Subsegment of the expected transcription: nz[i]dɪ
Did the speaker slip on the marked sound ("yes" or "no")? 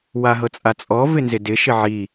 yes